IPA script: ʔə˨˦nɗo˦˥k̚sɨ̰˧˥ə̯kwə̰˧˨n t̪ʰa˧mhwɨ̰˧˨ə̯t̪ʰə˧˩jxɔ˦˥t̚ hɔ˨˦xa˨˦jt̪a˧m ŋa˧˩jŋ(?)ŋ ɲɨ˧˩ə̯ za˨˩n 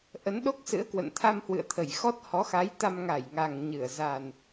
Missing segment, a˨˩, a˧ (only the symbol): a˨˩